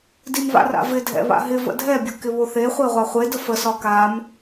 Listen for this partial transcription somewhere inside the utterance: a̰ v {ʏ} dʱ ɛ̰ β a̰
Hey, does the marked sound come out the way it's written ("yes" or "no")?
no